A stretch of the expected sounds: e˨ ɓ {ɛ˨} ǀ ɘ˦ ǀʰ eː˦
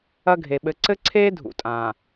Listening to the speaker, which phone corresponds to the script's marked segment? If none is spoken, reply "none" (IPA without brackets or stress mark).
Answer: ɘ˨